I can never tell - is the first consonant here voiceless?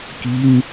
yes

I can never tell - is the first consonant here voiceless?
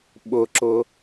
no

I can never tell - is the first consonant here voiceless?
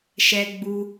yes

